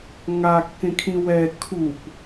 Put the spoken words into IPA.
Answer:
ŋ a kː ẽ kʰ ĩ w ɛ kʰ u p

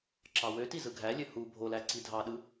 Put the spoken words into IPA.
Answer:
ǁ ɑ w ø t i z ɯ ɡʱ æ lʲ ø h u bʱ o l æ ǀ i dʱ ɑ ɗ ɯ

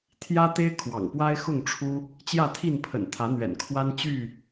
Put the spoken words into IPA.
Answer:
t̪ʰ j ä˦ t̪ e˦ ɪ̯ kʰ w ɑ̰˨˩ ŋ p w a˦ ɪ̯ x ʊ˥˨ ŋ ʈ͡ʂʰ u˦ | t͡ɕ j ä˥˨ t̪ʰ i˥˨ n pʰ ə̰˨˩ n t̪ʰ ä˨˦ n̪ ɥ ɛ̰˨˩ n kʰ w a˦ n t͡ɕ y˥˨

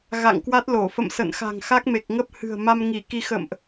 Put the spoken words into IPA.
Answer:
ɣ a̰˧˨ ŋ k w a˦˥ t̚ l o˧˩ f ə̰˧˨ m s ə̰˧˨ n x a̤˨˩ ŋ x a˦˥ k̚ m e˨˩ k̚ ŋ ə˦˥ p̚ h ɨ̤˨˩ ə̯ m a˧ m ŋ i˧˩ k i˧ x ə̰˧˨ m ʔ

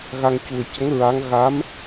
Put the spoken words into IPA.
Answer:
ɣ a˧ ŋ c u˨˩ ə̯ c ə˧˥ ŋ ɹ a˧˥ ŋ ɣ a˧˥ m

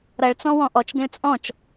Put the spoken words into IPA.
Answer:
ɾ ʌ ɭ t͡s ɔ̃ w ɔ̃ ʔ ɔ t͡ʃ ɡ ə̃ ɭ t͡sʼ ɔ̃ t͡ʃ

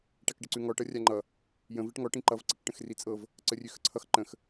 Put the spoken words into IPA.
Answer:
ʈ a k ɖ ə ǀ ʉ ŋ ɔ ʈ ʌ rʲ a ŋ͡ǃ ʌ | j ə̃ v i ʈ ŋ ɔ ʈ ĩ ǃ ʌ v ǀ i k ʈ ə̃ x r i t͡sʼ ɤ v | ǀ ə rʲ ʉ x ə ǀʰ ʌ x ǃ ə̃ x

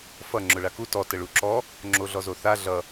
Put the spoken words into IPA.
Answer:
f ʌ ŋ͡ǁ ʊ ɭ a k u t ɔ t ə ɭ u ǁ ɔ | ŋ͡ǁ o ɮ ɔ z o θ a ɮ ʌ

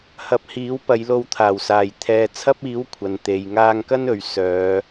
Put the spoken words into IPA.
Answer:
h ɐ˨˥ p̚ h iː˨˥ w p ɐ˨˧ j l o˧ w t̪ʰ aː˨˩ w s aː˨˩ j t̪ʰ ɛː˨ t͡sʰ ɐ˥ p̚ iː˨˥ w kʷʰ ɐ˨ n t̪ e˨ j ŋ aː˧ ŋ k ɐ˥ n ɵ˨˧ ɥ s œː˨˧

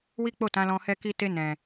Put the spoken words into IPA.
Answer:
w i˦ k͡p o˦˨ t ã˨˦ l ɔ̃˧ h ɛ˦ k i˦ t e˧ n ɛ̃˨

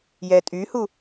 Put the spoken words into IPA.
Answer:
j ɛ tʼ y h u

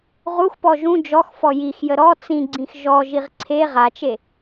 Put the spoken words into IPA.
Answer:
ʁ u x p ɔ ʒ ũ d͡ʒ ɔ x f ɔ j i x j ə ɾ ɔ t͡s ĩ ɡ͡ǀ ĩ x ʒ ɔ ʒ i ʁ ǀʰ e ʁ a t͡ʃ e

